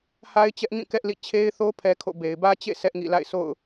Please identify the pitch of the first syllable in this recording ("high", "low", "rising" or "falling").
high